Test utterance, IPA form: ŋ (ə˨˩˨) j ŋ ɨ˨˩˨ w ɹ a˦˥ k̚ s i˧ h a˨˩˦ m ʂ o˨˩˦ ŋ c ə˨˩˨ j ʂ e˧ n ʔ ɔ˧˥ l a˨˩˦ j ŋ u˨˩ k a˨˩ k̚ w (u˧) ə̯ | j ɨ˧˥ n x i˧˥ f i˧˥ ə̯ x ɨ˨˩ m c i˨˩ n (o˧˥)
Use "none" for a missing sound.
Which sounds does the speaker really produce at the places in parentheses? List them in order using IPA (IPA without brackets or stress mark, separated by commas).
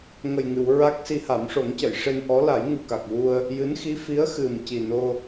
ə˨˩, u˧, o˧